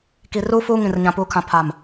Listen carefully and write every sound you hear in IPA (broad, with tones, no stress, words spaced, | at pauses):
ki˨ruː˦ fuː˦ ŋĩ˨rɲã˨puː˨kʰã˨ pʰa˨m